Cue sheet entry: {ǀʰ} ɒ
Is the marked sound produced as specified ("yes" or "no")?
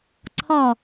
yes